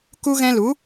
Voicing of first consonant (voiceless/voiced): voiceless